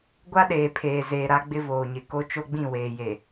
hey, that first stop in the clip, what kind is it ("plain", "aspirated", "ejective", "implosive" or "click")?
plain